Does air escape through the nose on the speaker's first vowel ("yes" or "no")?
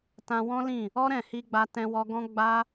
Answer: yes